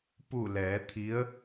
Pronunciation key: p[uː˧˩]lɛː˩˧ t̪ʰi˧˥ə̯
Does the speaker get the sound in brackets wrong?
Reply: yes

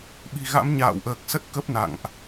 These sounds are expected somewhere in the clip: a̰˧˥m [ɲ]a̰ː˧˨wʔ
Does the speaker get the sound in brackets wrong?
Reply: no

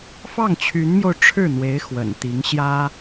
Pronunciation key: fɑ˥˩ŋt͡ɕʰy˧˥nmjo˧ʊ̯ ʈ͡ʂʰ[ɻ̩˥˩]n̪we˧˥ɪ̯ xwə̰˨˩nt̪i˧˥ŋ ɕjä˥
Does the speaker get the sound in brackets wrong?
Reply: no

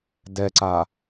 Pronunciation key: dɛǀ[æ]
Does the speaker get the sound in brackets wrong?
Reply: yes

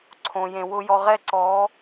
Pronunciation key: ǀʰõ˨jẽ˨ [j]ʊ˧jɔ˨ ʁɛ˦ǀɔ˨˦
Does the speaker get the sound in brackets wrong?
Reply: yes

